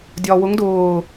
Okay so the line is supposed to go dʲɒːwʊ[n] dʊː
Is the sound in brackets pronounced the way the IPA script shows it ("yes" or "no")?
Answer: no